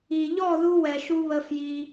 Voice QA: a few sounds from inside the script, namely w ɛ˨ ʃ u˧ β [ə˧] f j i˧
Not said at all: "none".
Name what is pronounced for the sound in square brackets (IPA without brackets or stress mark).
ə˧